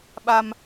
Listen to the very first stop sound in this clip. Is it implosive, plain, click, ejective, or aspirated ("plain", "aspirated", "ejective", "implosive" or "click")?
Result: implosive